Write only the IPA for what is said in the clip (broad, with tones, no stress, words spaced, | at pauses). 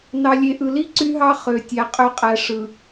nɑ˨lʲe˨ʔɯ˨li˦ ǀy˦ɦɑ˦ χø˨tʲæ˨ qʼø˨qʼæ˨ʂɯ˨